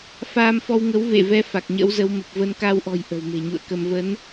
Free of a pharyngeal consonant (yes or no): yes